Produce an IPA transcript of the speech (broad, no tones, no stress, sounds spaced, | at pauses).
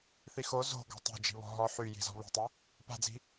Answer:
θ i x o z o̤ ɡ ɔ̤ tˤ o̤ d͡ʒ i̤ β ɔ̤ ɦ ɔ ħ y j i̤ z ɔ̤ β i̤ tˤ ɪ | p a̤ d͡z i̤